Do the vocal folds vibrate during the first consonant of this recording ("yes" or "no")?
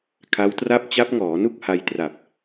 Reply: no